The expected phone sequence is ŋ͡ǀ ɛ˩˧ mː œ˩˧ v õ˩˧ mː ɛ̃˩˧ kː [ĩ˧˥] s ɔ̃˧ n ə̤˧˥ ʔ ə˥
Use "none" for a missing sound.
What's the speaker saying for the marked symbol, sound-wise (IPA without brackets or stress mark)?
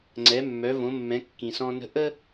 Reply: ĩ˩